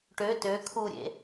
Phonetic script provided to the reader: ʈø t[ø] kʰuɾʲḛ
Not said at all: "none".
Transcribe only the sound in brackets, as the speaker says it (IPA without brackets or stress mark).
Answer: ø